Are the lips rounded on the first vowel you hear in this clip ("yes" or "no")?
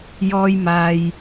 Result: yes